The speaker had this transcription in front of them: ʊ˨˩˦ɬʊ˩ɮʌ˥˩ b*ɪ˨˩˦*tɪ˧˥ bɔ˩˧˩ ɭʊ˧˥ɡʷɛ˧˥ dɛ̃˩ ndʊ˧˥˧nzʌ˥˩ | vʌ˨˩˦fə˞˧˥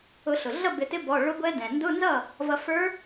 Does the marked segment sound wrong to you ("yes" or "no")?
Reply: no